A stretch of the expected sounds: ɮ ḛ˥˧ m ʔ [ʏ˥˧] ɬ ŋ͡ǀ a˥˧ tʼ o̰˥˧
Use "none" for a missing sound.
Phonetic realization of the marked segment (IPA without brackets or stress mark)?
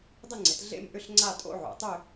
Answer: ʏ˥˧